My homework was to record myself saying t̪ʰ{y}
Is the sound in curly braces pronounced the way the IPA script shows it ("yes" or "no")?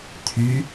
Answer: yes